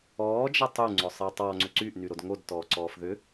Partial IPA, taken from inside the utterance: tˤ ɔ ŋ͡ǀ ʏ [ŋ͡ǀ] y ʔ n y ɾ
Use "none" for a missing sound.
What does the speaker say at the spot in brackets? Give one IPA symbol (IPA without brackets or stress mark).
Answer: ǀ